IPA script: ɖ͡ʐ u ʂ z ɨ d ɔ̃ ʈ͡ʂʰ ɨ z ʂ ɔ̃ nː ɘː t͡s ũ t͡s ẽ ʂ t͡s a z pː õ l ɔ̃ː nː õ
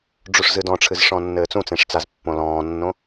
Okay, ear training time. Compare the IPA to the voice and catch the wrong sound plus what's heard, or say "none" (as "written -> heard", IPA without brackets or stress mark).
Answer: none